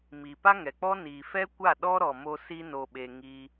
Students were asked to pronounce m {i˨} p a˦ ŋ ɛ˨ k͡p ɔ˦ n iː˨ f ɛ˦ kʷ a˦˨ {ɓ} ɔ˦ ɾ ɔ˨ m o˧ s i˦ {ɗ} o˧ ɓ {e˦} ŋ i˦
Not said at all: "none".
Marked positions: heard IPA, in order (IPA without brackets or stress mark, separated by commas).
i˨, ɗ, n, e˧